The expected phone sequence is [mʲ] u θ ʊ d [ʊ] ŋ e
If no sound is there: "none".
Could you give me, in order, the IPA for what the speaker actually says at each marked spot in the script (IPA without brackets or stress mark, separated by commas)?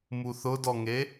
m, ɔ